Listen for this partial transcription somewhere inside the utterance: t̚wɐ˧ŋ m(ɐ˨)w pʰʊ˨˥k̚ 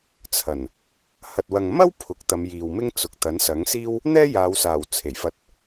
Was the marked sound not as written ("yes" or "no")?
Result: yes